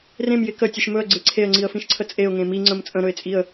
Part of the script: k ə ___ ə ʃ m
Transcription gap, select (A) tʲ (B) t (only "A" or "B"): A